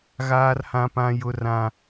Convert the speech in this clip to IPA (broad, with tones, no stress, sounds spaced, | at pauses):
ɣ aː˦ r h ã˦ p ã˦ j ʊ˦ r ã˦